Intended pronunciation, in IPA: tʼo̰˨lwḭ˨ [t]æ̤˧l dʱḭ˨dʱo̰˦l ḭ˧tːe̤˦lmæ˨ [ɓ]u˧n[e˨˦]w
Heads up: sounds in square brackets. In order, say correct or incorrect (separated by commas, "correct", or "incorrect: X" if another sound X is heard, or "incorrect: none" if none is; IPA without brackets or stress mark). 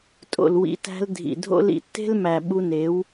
correct, correct, correct